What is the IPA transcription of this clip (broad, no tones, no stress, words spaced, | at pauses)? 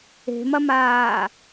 e̤mɐmaː